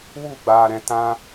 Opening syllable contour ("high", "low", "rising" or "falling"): falling